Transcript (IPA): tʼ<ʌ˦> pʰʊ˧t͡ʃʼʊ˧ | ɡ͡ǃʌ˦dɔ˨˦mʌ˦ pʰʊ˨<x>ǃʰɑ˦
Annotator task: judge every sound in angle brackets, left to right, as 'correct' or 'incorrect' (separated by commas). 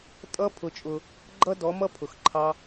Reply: correct, correct